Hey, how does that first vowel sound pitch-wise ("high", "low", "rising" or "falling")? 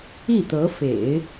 falling